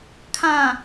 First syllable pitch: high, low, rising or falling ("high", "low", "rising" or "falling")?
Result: low